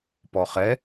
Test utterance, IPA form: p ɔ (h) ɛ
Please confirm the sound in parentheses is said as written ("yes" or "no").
no